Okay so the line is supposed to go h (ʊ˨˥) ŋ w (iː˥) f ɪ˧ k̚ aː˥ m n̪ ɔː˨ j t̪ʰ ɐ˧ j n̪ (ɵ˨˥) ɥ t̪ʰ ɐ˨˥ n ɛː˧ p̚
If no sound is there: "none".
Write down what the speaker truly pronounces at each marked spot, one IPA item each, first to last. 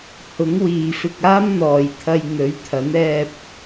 ʊ˨˥, iː˨, ɵ˨˥

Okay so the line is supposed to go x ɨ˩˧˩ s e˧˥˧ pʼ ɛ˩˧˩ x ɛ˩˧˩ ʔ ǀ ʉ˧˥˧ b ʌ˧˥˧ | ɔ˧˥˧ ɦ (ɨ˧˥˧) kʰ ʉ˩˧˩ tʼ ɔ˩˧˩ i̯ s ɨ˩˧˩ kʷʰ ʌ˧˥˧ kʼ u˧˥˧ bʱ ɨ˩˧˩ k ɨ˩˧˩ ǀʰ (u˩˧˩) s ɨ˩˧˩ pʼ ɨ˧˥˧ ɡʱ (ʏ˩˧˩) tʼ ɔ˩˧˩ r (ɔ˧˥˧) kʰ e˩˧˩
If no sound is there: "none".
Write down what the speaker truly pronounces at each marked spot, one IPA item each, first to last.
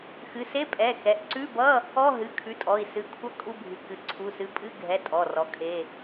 ɨ˩˧˩, u˩˧˩, ɛ˩˧˩, ɔ˩˧˩

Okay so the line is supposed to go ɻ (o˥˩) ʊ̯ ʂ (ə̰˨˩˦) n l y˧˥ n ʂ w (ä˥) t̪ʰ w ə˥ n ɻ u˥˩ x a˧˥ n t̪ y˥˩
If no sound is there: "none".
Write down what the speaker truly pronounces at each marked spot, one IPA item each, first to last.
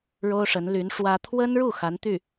o˥, ə˧˥, ä˥

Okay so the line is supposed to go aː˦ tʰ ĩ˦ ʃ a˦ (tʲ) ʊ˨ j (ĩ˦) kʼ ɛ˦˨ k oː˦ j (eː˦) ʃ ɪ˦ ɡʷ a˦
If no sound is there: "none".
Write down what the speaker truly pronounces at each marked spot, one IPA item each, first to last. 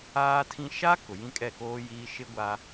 k, ĩ˦, iː˦

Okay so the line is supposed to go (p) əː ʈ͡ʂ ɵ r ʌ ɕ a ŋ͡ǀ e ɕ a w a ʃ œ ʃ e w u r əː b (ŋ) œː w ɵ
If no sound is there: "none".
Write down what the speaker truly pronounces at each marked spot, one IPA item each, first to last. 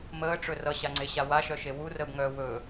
m, ŋ

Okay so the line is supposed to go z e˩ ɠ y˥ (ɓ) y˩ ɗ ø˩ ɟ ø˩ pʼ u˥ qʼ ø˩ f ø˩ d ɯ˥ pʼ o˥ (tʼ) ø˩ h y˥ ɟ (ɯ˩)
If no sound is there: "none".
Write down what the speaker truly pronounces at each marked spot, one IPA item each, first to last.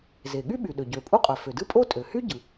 ɓ, tʼ, ɯ˩

